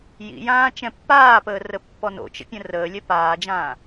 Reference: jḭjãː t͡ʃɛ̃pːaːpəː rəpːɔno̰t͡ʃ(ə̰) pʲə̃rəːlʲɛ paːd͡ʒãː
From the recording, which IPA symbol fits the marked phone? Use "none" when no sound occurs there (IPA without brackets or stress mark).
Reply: ə̰